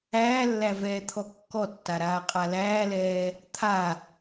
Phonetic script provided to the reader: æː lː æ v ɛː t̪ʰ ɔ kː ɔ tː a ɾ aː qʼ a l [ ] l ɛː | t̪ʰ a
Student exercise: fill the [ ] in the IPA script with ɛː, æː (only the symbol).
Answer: æː